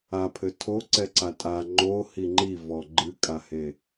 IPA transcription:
a pʰ ɘ tʰ o ǀ ɛ ǀ a tʼ a ŋ͡ǃ o h i ŋ͡ǃ i v ɔ ɡ͡ǃ ɨ kʼ a h e

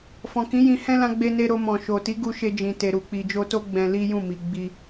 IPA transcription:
f ɔ̃˨ k ĩ˨˦ j ĩ˧ h ɛ̃˦ l ã˧ ɡ͡b e˧ n e˧ ɾ o˧ m ɔ̃˨ ʃ o˨ t i˨˦ ɡ u˧ ʃ e˧ d͡ʒ ĩ˨ t e˨ ɾ u˨ k͡p i˨ d͡ʒ o˧ t o˦ ɡ͡b ɛ̃˧ l i˦ j ũ˦˨ m i˨ ɡ͡b i˧

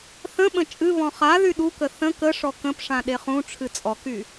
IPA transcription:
θ ə̃ ɓ ə̃ t͡ʃʼ ɨ β ɔ̃ χ a ð y ɗ u k ə θ ə̃ k ə ʂ ɔ k ə̃ p ʂ ã ɗ e χ ũ ʈ͡ʂʰ ɨ t͡sʼ ɔ k y

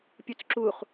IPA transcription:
pʲ u t͡s ǁ u χ

